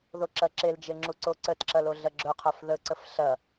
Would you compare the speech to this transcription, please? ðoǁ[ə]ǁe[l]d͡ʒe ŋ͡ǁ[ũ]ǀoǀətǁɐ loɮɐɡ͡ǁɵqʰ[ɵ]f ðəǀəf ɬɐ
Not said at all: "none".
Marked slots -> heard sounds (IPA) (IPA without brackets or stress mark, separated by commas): ɐ, l, u, œ